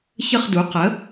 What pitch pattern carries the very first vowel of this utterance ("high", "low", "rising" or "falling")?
falling